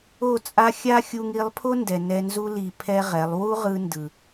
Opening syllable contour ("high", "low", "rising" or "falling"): falling